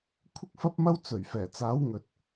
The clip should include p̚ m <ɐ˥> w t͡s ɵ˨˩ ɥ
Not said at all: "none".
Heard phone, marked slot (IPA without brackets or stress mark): ɐ˥